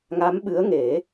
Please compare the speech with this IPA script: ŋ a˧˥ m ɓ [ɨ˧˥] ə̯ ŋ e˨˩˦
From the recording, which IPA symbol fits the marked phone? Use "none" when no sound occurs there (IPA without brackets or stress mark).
ɨ˧˥